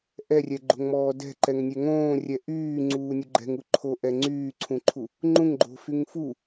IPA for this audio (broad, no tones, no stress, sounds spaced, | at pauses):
ʔ ɛ rʲ ɛ ɡ͡ǃ o̤ ŋ m ɔː d ɛ̤ ǃ ɛ ŋ nʲ ɛ ŋ õː rʲ ɛ ʔ yː ŋ͡ǀ uː nʲ u ɡ͡ǃ ɛ̤ ŋ u ǃʰ o ʔ ɛ ŋ͡ǀ yː ǀʰ ũ ǃʰ u | ŋ͡ǃ ũ ŋ ɡ͡ǃ o̤ f y ŋ f u